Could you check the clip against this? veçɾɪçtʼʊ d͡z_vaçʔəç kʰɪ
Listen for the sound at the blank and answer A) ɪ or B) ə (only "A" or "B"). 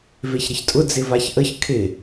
A